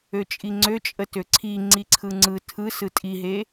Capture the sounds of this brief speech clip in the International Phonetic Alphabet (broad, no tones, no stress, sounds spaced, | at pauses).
ø t͡ʃʼ i ŋ͡ǀ ø t͡ʃʼ ə t ø ǀʰ i ŋ͡ǀ i ǀʰ ɯ ŋ͡ǀ ɯ tʰ ɯ s ɯ tʼ i ɦ e